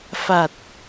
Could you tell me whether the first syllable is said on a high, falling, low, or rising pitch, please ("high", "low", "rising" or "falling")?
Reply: low